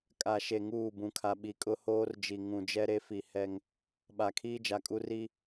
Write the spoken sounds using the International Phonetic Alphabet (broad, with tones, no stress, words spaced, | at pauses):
kʼa˨ʃe˨ ŋuː˦˨bũ˨kʰa˨ ɓi˨kʼʊ˦hoː˦rd͡ʒi˨ ŋũ˨ d͡ʒɛ˦ɾe˦ fi˨hɛ˦ŋ | ɓa˨kʰiː˦d͡ʒa˨kʼu˦ ri˦